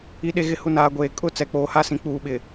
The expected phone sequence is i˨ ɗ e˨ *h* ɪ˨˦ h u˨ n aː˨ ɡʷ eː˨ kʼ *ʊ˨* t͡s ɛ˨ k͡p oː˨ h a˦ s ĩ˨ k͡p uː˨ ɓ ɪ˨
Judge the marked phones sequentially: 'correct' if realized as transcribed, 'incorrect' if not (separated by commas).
incorrect, incorrect